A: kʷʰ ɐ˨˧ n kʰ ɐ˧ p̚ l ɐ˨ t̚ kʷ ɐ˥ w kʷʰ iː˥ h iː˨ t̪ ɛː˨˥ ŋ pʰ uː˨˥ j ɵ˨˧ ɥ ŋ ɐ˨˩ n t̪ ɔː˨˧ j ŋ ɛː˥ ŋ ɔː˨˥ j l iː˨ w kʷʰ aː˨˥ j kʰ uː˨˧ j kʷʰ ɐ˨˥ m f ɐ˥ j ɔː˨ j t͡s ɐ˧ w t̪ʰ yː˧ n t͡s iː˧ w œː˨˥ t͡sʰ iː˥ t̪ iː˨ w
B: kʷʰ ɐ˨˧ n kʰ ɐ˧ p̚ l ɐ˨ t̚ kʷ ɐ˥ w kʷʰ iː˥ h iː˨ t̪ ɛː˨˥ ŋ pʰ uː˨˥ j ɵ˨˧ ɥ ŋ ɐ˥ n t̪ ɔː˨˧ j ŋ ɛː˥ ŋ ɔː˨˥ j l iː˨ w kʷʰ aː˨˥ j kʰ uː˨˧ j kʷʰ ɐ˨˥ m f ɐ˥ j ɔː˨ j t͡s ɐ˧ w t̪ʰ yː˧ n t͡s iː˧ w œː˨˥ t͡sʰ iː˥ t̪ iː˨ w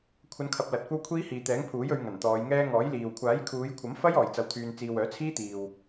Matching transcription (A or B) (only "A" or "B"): A